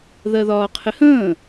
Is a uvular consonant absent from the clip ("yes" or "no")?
no